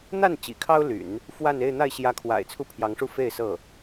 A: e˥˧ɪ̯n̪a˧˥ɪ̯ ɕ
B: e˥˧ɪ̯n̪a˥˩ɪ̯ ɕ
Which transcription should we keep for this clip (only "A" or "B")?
B